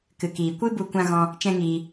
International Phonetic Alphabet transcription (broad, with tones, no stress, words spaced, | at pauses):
kɨ˨kiː˨ kʷɨ˦ bu˦kʷã˦ ɣɔ̃˧ | t͡ʃɛ̃˦ŋiː˧